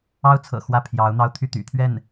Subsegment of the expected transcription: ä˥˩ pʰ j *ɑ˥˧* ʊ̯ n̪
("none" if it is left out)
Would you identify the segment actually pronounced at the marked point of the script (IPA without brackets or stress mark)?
ɑ˧˥